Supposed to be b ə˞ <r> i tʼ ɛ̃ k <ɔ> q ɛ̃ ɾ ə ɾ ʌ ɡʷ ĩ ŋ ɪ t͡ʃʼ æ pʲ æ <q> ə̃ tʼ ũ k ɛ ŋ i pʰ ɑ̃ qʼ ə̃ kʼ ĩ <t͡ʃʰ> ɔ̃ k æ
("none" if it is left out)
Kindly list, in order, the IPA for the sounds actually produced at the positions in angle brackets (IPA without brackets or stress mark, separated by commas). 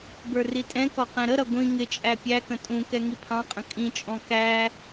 r, ɔ, k, t͡ʃʼ